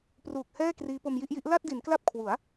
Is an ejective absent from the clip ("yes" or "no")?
yes